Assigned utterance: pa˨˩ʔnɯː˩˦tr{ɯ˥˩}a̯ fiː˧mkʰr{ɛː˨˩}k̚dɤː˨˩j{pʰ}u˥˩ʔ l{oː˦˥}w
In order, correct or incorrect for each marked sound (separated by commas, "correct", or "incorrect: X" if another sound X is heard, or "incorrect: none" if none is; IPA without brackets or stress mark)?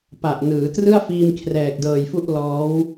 correct, correct, incorrect: f, incorrect: ɔː˦˥